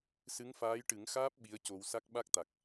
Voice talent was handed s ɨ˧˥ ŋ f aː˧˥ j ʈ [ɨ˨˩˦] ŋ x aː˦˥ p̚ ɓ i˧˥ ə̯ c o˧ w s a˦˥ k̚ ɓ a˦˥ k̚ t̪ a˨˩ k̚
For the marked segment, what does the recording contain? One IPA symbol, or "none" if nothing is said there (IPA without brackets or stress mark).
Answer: ɨ˨˩˦